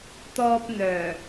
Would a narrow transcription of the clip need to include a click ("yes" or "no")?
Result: no